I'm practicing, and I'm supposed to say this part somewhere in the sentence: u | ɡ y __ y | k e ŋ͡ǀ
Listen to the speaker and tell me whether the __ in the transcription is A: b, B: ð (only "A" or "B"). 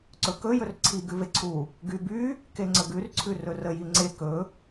A